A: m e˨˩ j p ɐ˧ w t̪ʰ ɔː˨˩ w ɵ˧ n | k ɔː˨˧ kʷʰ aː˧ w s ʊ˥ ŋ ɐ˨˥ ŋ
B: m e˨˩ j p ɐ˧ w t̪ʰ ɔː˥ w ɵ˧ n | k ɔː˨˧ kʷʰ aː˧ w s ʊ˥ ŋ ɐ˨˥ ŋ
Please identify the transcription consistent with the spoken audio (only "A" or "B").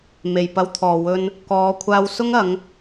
A